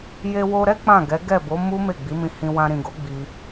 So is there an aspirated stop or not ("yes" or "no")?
no